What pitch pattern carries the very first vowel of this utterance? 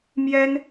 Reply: high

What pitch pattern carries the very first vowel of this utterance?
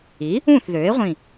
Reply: rising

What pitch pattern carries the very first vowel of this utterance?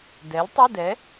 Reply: rising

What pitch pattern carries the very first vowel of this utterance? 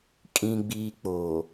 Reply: high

